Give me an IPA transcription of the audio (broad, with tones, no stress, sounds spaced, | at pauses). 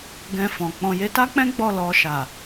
ɡ ɛ̃˧ f ɔ̃˨ k͡p ɔ̃˨ j e˧ t a˦ k͡p ɛ̃˦ ɡ͡b ɔ˦˨ l ɔ˨ ʃ a˨